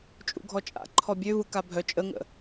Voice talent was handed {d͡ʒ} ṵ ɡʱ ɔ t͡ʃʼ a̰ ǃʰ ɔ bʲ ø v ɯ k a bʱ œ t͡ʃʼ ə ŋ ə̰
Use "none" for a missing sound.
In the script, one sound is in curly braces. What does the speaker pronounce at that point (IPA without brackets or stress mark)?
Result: t͡ʃʼ